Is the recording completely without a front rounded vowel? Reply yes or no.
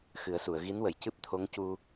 yes